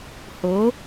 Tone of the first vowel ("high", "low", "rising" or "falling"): rising